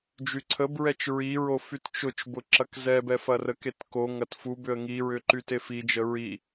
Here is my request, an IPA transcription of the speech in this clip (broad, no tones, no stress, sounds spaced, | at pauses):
d͡ʒ y ǀʰ ə b ɹ ɛ t͡ʃ ɹ i ɹ o f y t t͡ʃ ʊ t͡ʃ b ʊ ǁ ɐ k z ɛ b ɛ f ɐ r ə k e t k o ŋ ɐ t f u b ʏ ə̯ ŋ i ɹ ʏ ǃ y t e f i d͡ʒ ə ɹ i